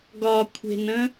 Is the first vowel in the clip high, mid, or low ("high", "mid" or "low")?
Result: low